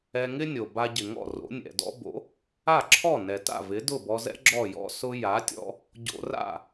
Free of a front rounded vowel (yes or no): yes